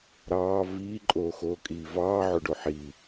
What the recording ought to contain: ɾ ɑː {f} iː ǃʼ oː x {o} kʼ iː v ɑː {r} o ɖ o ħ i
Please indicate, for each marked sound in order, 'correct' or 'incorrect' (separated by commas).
incorrect, incorrect, incorrect